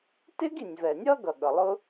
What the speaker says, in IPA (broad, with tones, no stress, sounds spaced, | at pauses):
t ɪ˥ ɡ i˩ nʲ v ɛ˩ nʲ ʌ˥ ɡ ʌ˩ ɠ ʌ˩ lˠ ʊ˥